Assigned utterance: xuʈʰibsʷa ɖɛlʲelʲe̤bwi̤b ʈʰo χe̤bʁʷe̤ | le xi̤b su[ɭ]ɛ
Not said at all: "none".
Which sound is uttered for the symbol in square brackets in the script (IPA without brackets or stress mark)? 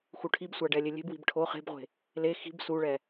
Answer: ɭ